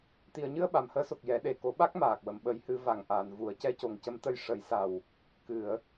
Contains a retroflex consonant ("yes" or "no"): yes